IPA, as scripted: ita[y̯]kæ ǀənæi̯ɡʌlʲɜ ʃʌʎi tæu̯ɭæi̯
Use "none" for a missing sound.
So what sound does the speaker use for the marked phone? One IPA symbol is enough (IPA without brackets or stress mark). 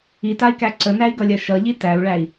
i̯